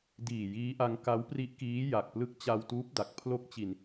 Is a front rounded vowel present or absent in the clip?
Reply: absent